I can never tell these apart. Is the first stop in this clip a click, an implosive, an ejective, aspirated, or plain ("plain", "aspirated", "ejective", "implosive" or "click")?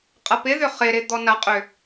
ejective